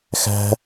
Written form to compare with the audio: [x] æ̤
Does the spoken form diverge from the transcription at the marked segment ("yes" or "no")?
no